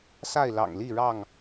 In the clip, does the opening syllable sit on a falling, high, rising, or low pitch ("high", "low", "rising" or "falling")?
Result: falling